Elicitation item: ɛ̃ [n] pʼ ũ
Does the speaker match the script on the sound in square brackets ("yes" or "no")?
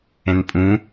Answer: yes